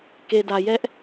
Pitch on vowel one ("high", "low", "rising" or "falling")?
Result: low